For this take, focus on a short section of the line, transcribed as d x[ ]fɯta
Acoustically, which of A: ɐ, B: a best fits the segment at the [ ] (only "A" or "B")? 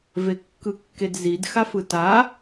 B